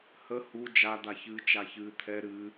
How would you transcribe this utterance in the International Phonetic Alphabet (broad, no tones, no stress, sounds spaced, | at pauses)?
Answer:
h ə h u d͡ʒ a d̪ a ç ɨː t͡ʃ a ç ɨː t̪ʰ ɛ ɾ ɨ